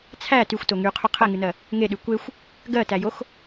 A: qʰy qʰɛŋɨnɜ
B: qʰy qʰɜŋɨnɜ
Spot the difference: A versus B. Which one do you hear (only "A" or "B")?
A